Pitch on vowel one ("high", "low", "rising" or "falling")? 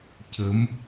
rising